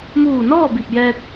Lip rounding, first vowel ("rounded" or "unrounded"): rounded